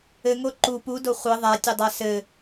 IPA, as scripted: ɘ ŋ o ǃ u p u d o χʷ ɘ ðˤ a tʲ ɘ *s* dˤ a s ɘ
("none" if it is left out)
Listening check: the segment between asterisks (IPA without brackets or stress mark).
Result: none